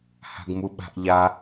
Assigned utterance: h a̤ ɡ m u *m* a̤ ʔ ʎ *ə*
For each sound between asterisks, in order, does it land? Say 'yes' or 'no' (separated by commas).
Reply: no, no